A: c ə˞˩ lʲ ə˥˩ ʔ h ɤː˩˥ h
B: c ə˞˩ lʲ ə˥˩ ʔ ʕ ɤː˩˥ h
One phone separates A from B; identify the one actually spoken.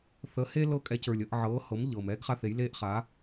B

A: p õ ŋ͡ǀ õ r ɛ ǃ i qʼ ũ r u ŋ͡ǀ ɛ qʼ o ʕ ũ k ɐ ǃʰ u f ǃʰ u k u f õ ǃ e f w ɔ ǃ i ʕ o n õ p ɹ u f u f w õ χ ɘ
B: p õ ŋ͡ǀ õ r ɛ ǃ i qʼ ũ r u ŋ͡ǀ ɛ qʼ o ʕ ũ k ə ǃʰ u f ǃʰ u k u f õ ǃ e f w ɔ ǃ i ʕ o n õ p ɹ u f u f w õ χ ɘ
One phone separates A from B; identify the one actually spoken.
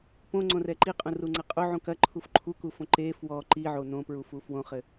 A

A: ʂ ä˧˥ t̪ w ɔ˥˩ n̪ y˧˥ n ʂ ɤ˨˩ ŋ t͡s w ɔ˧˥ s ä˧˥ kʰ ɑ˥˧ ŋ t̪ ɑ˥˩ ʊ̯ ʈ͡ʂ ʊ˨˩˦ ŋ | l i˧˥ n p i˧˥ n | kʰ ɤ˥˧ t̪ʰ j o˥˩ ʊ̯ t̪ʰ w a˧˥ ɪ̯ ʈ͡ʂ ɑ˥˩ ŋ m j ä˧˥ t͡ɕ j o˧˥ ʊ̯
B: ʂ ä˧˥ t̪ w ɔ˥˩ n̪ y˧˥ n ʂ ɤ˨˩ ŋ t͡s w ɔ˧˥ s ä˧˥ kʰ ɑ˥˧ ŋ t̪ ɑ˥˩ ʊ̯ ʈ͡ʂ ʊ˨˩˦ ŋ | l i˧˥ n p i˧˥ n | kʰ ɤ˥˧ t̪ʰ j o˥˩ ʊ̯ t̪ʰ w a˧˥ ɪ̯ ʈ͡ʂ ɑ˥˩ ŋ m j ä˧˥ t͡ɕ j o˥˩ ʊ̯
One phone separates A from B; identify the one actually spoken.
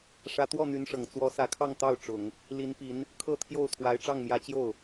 B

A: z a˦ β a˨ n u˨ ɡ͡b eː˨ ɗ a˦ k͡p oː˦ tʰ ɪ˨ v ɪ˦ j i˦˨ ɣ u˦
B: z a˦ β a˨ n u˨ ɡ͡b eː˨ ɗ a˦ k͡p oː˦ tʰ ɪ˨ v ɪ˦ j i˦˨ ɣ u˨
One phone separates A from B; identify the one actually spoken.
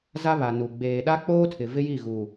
B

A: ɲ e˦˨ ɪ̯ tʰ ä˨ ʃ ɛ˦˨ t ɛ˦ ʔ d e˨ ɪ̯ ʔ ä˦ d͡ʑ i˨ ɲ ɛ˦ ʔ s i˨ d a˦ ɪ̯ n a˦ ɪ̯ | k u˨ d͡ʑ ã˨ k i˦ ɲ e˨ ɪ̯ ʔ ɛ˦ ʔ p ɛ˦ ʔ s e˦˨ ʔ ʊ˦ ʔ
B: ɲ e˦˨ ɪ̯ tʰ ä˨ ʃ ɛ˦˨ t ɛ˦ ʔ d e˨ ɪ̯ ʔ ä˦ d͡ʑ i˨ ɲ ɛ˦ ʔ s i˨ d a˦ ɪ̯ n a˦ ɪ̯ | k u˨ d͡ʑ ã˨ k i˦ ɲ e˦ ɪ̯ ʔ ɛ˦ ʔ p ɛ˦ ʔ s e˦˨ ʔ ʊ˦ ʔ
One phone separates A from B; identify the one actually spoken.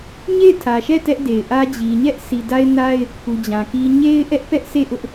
B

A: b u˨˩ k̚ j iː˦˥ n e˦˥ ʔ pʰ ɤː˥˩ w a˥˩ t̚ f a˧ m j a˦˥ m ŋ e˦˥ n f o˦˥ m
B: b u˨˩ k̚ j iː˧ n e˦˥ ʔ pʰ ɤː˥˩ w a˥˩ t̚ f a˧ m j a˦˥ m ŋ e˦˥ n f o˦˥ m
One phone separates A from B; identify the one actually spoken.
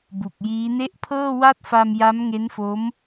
A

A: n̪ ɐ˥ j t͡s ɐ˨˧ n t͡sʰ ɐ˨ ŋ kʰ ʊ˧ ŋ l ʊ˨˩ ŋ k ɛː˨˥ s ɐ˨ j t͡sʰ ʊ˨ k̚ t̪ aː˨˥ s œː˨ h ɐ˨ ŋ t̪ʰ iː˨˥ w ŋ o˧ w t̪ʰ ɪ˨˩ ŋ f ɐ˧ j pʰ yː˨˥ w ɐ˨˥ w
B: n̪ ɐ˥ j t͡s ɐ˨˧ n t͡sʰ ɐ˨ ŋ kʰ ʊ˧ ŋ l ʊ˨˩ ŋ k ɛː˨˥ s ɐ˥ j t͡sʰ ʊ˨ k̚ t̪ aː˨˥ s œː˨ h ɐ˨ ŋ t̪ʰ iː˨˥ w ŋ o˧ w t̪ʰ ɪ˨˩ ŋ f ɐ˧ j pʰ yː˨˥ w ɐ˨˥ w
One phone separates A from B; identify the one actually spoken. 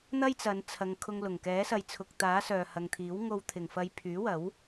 A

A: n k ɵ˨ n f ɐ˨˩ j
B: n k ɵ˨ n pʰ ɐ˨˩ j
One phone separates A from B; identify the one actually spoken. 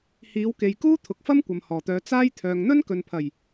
B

